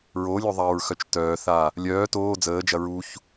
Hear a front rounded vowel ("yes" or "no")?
yes